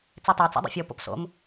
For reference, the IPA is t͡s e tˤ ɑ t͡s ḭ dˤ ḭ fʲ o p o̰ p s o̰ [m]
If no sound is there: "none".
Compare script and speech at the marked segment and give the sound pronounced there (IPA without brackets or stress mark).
m